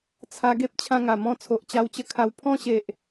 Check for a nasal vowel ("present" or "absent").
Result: present